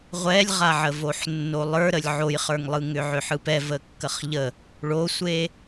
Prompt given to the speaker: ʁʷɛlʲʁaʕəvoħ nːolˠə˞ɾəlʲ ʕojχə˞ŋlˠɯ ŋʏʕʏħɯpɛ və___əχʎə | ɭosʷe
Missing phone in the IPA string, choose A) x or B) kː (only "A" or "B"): B